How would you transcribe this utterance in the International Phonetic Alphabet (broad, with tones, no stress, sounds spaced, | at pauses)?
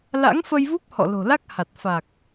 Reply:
l a̰˧˥ ŋ f ə˧ j v u˦˥ p̚ h ɔ̰˧˨ l o̤˨˩ l a˦˥ k̚ h a˨˩ t̚ f a˨˩ k̚